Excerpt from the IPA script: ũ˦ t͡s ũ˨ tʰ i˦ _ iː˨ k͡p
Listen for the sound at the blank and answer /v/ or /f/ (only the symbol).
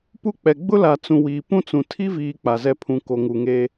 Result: v